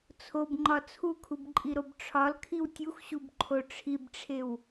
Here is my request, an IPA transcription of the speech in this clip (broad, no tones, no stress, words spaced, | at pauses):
t͡sʰobŋ͡ǃɒ t͡sʰukʰubǃʼiɾob ʈ͡ʂʰɒlkʰiw tʲuxɕubǃʰo ʈ͡ʂʰibʈ͡ʂʰew